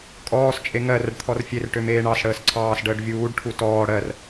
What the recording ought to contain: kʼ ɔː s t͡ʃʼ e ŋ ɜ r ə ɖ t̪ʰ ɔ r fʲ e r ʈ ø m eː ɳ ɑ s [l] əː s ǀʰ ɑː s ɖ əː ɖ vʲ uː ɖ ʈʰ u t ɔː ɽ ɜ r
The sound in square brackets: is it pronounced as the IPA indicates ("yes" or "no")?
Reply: no